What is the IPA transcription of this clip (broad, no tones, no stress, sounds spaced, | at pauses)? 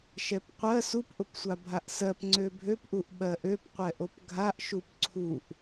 ʃ ɛ p qʷ ɜ s u p ʔ ʊ p sʷ a bʱ a ʔ s ɜ p ŋ͡ǀ ø bʱ ø p ʔ u ʔ ɓ ɜ ʔ ø p qʷ ɛ ʔ o p ɡʱ a ʔ ʃ u p ǀʰ u ʔ